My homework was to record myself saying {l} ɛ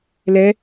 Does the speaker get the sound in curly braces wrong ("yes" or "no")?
no